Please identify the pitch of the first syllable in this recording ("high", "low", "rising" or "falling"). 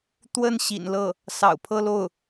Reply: falling